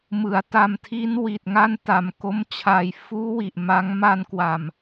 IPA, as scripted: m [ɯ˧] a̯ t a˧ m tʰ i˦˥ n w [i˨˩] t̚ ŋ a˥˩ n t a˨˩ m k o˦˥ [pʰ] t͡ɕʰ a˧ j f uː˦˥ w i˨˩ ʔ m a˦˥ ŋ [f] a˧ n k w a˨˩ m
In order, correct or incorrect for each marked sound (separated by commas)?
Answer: incorrect, correct, incorrect, incorrect